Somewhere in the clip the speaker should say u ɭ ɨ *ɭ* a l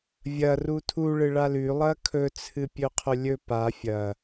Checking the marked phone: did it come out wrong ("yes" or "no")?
no